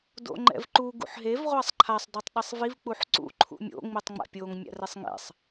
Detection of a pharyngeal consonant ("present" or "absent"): present